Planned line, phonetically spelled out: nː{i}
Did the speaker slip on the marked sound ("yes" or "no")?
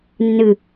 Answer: yes